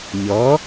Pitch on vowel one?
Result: rising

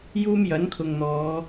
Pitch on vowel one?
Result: high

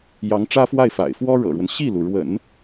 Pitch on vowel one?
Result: rising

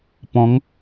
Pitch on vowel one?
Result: rising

